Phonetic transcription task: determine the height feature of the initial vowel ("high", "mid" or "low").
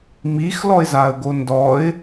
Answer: high